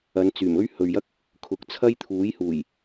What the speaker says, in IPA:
ɐ˨˧nt͡syː˨˩mɵ˥ɥ hɵ˨ɥjɐ˥k̚ | kʰʊ˨k̚ t͡sʰɐ˥jt̪ʰuː˨˥jhuː˨˩j

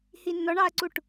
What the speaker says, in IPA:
hinːɔɳɑɐ̯ǀuʈ

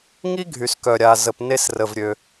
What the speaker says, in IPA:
ŋi˥ɡʱy˩skœ˩ɾʲa˩ zə˩p ne˧srə˩vɾʲø˩

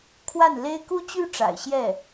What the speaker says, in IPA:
kʰwa˥˩nle˥ɪ̯ ku˥t͡ɕy˥ ʈ͡ʂa̰˨˩ɪ̯ɕjɛ˥˩

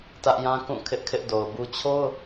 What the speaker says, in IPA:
tä˦ʔjã˦kũ˦˨ kʰɪ˦ʔkʰɪ˦ʔdo˨ʊ̯bu˦ t͡ɕʰo˦ʊ̯

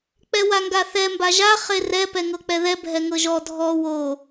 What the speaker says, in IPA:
k͡pɛwaŋɡaθɛ mbaʒa χerɛ pɛŋɤk͡pɛðɛ bʱɛŋɤʒɔ dʱɔ wo

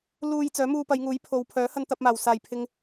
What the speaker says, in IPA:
luː˧j t͡sœː˨˥muː˧pɐ˨˧jŋuː˨˥j pʰo˨wpʰœː˨˥ hɐ˧nt̪ɐ˧p̚maː˨˩w saː˨˩jpʰɪ˨ŋ

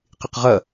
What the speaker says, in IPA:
qɪqʁɐ

